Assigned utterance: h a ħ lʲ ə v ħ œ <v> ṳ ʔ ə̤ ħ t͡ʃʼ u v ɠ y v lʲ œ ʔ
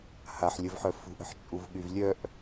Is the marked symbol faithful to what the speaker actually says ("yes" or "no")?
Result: no